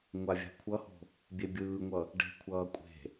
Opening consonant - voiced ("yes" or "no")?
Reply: yes